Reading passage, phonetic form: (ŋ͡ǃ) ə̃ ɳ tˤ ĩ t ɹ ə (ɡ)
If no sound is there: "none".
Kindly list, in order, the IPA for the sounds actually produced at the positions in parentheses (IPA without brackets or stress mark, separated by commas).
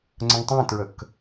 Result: ŋ͡ǀ, k